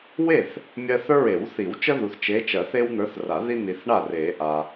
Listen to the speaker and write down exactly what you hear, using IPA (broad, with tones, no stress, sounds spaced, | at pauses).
w e˥˩ θ | mʲ ɜ˦ θ ə˞˦ ɹ e˨˩˦ w θ i˨˩˦ w t͡ʃ ə˦ ð u˨ θ t͡ʃ e˨˦ t͡ʃ ɜ˨˩˦ θ e˦ w n̪ ə˞˨˦ θ r a˨˩˦ ð i˦ n̪ i˨ θ ɳ a˥˩ r e˨˩˦ ʔ a˨